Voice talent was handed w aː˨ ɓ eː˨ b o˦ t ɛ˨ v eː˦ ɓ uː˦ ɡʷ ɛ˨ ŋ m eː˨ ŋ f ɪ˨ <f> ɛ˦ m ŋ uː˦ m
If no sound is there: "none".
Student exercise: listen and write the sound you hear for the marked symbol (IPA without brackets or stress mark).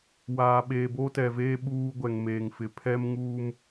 pʰ